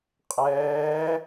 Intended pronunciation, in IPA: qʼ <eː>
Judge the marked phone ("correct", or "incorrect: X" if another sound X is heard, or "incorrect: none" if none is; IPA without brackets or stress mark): incorrect: ɛː